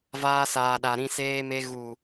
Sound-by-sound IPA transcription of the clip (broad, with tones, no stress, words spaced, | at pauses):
vaː˧saː˨ɗa˨ ɾĩ˧seː˦me˦ ɣu˨